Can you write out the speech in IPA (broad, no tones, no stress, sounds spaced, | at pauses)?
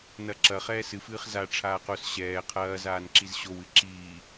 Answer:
n ɐ ǁ ɐ χ ɛː s ɨ f ɨː χ z a ʈ͡ʂʰ aː q o s ɕ ɛː qʰ ɐː z aː n ǁ i z ɕ o w ɨ ǁ iː